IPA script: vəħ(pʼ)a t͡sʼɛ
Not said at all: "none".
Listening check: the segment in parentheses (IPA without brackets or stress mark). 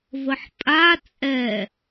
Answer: pʼ